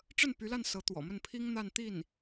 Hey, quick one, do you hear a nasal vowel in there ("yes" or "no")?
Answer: no